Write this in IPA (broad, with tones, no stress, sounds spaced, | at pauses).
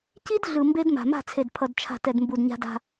c i˦ d ɮ ɯ˨ m b e˦ d m a̤˨ m a̤˦˨ t͡sʰ e˨ d pʰ ʌ˨ d t͡ʃʰ a̤˨ t ɛ˨ d m b u˨ d ɲ a̤˦ d a̤˦